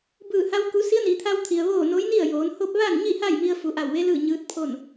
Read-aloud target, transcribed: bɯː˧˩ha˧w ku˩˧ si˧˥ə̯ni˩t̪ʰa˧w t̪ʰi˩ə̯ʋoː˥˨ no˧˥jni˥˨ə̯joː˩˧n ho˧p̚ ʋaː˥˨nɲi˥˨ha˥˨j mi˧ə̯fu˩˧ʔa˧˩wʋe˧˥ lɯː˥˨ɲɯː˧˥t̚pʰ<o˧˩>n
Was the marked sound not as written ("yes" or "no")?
yes